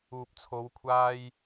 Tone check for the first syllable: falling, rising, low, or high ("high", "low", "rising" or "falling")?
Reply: low